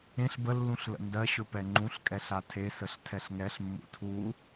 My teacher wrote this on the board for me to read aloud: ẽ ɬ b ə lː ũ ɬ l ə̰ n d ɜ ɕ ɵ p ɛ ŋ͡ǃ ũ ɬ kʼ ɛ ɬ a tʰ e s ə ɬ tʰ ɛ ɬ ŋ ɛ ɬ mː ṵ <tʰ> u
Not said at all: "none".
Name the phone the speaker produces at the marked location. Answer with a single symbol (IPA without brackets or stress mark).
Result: tʰ